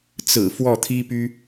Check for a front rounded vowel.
present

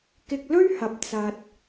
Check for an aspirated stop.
absent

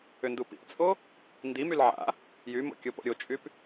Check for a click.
absent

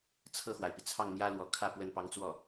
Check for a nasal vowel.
absent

